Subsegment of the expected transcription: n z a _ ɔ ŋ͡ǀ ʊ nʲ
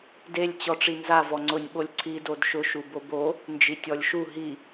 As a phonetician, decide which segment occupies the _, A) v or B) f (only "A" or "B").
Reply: A